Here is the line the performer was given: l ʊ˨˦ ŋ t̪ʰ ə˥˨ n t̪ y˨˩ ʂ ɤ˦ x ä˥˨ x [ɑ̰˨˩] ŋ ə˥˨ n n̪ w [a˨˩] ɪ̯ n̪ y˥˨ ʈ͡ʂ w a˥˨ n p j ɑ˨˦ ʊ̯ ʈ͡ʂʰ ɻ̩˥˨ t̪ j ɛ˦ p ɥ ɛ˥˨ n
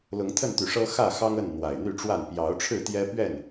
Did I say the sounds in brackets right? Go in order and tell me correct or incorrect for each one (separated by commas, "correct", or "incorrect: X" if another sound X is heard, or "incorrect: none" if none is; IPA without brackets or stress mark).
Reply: incorrect: ɑ˦, correct